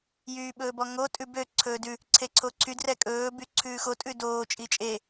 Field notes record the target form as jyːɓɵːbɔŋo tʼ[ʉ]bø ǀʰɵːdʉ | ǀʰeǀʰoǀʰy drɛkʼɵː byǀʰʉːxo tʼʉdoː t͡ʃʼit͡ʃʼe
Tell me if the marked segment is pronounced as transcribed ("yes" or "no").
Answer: yes